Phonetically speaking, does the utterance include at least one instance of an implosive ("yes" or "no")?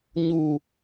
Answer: no